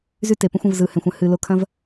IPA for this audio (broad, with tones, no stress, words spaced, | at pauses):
zy˦te˨pə̃˦xʷɐ̃˧v zɯ˨hɛ̃˨xʷə̃˧ hɨ˨lo˧kʰɐ̃˦v